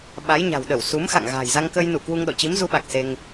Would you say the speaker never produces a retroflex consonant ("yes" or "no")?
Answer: yes